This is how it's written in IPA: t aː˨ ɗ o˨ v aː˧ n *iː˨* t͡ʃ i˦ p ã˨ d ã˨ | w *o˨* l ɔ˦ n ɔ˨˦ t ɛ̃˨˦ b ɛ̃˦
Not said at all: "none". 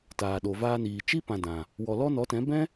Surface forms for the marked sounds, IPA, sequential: iː˨, ɔ˨

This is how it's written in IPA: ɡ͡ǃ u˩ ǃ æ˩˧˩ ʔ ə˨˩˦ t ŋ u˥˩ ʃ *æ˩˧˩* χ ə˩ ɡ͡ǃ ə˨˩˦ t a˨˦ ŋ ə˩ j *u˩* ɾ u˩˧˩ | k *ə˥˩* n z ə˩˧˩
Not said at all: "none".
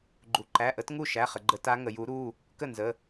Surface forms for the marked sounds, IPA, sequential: æ˩˧˩, u˨˩˦, ə˥˩

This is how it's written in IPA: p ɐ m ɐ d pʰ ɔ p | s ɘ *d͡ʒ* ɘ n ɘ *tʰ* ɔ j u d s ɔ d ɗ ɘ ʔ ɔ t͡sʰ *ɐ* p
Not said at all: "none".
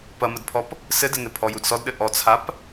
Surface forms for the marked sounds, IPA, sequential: d, pʰ, a

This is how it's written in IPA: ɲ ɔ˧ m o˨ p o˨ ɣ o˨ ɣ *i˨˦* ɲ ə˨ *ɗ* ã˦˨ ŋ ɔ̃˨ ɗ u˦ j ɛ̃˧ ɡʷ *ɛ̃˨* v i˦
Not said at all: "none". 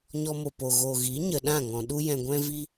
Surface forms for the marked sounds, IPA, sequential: i˨˦, ɗ, ɛ̃˦

